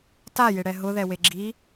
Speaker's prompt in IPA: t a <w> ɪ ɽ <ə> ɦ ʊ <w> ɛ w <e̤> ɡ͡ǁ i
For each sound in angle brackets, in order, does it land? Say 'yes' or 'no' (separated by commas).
no, no, no, no